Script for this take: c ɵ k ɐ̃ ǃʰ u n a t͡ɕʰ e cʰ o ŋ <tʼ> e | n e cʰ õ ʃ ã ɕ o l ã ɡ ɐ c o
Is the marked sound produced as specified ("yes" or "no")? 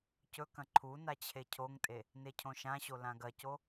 yes